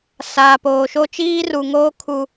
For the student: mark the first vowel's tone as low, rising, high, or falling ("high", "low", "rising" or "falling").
low